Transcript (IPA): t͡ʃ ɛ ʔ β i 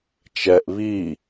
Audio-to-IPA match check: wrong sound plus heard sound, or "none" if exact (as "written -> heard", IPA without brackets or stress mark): none